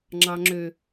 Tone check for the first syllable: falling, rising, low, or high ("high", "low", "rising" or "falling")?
low